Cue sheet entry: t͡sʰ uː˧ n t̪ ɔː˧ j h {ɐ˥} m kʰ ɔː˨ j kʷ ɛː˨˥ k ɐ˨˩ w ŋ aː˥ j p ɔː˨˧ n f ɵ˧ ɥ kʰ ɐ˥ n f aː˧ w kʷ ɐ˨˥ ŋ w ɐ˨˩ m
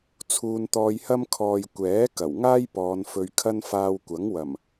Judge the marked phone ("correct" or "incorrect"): correct